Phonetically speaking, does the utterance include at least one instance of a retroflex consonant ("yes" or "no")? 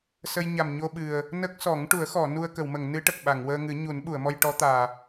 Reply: yes